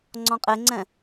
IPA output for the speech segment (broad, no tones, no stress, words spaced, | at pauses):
ŋ͡ǀɔ̃qʼeŋ͡ǀɛ̃